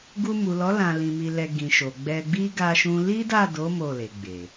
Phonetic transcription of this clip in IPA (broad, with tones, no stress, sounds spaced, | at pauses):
ɡ u˧ m u˨ l ɔ˨˦ l ã˧ l ĩ˧ m i˧ l ɛ˧ ɡ ĩ˨ ʃ o˨ ɡ͡b ɛ˧ ɡ͡b i˦ ɡ a˦ ʃ ũ˦ l i˦ d a˦˨ d o˨˦ m o˦˨ l e˨ ɡ͡b e˨